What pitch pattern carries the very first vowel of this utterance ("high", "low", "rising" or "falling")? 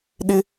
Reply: high